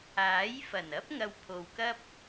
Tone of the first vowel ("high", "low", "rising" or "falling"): rising